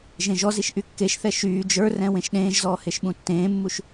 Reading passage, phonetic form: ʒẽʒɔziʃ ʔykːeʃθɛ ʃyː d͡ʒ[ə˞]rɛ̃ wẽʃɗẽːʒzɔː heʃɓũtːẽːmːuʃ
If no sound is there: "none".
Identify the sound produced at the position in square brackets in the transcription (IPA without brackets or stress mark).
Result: ə˞